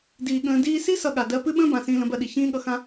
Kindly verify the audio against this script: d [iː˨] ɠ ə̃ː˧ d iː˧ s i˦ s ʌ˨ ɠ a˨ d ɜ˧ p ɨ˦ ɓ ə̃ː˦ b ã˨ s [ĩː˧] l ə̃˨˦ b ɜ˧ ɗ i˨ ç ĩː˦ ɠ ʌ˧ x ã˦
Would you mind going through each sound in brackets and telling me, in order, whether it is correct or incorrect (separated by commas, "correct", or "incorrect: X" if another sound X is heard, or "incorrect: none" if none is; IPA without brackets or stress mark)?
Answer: correct, correct